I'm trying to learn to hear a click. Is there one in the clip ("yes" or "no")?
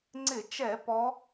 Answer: yes